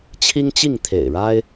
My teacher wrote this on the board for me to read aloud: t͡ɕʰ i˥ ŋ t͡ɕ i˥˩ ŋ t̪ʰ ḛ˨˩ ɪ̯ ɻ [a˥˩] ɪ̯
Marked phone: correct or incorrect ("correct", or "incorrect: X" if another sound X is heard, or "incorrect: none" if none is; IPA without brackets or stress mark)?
incorrect: a˥